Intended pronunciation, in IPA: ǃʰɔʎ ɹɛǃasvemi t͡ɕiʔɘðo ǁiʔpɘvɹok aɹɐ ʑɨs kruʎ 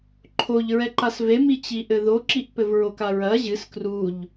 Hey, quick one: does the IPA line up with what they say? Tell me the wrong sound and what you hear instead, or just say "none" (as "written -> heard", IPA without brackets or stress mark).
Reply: ɔ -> o